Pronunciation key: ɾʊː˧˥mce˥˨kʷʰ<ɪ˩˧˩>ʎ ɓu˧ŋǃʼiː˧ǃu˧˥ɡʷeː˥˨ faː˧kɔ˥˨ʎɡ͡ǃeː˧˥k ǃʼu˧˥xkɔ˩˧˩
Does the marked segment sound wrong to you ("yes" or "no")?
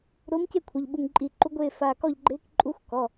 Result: no